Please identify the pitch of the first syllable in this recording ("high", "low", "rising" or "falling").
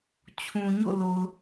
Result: low